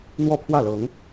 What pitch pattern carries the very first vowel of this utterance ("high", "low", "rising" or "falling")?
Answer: falling